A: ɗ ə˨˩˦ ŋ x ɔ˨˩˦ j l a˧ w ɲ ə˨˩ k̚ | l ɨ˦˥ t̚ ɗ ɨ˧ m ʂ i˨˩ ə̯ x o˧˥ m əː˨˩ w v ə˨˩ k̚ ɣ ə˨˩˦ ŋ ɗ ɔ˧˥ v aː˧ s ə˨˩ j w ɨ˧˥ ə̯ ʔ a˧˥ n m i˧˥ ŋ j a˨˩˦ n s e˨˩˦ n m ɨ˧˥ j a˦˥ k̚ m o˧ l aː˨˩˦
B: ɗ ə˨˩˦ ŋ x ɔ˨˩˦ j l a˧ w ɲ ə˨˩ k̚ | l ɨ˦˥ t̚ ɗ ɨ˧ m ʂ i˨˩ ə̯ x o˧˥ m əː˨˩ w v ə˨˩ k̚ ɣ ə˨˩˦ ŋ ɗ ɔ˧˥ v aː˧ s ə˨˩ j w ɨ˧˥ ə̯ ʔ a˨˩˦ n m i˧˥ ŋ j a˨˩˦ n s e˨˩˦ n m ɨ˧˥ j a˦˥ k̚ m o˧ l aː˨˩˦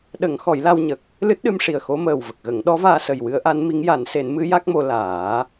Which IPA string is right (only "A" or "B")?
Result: A